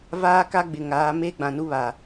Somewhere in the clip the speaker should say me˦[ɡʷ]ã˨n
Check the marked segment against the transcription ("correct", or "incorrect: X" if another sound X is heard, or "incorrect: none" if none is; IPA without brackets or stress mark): incorrect: ɡ͡b